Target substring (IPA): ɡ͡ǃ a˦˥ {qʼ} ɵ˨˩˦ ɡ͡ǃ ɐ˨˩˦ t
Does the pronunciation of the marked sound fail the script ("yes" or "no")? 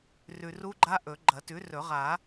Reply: yes